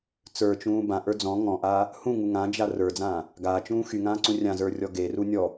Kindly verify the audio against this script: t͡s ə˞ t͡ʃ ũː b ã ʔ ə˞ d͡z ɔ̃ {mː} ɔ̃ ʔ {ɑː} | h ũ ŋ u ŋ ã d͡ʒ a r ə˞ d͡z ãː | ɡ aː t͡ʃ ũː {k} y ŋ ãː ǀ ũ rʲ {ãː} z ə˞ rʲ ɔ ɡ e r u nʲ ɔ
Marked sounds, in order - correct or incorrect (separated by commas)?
incorrect, incorrect, incorrect, incorrect